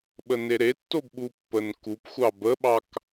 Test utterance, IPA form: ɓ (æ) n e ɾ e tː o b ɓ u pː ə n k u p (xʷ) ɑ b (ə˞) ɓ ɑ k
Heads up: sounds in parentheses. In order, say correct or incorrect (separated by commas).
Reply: incorrect, correct, incorrect